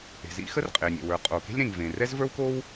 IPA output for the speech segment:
e̤˩zḭ˥xə˥r qʼe˩nʲḛ˩wə˞˩ qʼo˩ke̤˥lʲɾẽ˩ŋ vẽ˩ rɛ˥zvə˞˥wko˥w

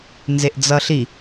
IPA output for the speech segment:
nzeʔd͡zʌɬi

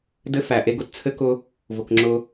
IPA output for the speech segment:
dɘ˦fæ˨ʔe˦ɡ ʊ˦tt͡sʰɘ˦kʊ˦ | vʊ˨k ŋ͡ǁʊ˦

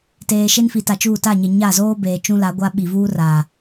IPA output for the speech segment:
teː˨ ʃe˦nfi˨ta˨t͡ʃuː˦˨ ta˦˨ɲe˨ ɲa˦˨zoː˦ beː˨t͡ʃũ˦la˨˦ɡʷa˦ ɓi˨vuː˦ra˨

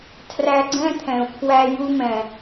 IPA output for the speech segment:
tʰræ˧ɡ͡ǀɛ̃˦t̪ʰɛ̃˨u̯pʰwæ˧ ju˧mɛ̃˨

